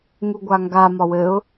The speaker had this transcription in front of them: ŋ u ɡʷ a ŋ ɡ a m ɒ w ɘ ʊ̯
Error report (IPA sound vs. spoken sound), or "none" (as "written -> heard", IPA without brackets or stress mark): none